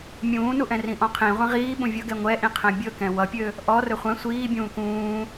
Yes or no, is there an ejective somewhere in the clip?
no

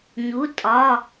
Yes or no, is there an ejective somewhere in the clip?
yes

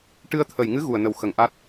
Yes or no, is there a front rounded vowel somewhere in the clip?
no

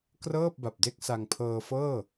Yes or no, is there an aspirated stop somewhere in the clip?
yes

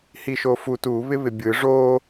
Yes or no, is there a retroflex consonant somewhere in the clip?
yes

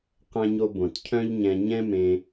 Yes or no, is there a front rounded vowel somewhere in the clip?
yes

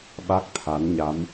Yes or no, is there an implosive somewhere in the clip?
yes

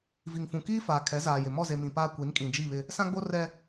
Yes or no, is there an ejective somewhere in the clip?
yes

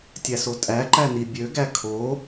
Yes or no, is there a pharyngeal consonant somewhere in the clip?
no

